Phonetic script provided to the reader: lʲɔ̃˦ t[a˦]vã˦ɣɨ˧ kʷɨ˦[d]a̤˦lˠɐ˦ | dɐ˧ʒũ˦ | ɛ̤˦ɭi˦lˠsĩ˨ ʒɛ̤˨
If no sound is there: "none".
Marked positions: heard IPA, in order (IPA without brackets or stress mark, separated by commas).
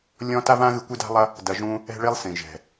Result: a˦, d